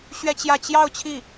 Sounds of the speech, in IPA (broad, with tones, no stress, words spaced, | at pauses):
ɕɥɛ˥t͡ɕjä˥˧ t͡ɕjɑ˥˧ʊ̯ t͡ɕʰi˥˩